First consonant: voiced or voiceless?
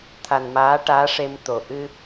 voiceless